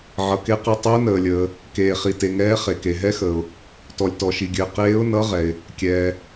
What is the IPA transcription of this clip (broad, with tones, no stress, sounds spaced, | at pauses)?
ʕ ʌ˩ k e˧˥ q e˧˥ tˤ ɘ˧˥ ʊ̯ n əː˩ lʲ əː˩ | k eː˩ χ i˩ t e˩ ŋ ɛː˧˥ χ e˩ k e˩ ɦ ɛ˧˥ x əː˩ ʊ̯ | t ɔ˩ lʲ t ɔ˩ ʃ i˩ ɡʲ ɘː˩ q eː˧˥ ʊ̯ n ʌ˧˥ ʁ ɛ˩ ɪ̯ | kʲ ɛː˩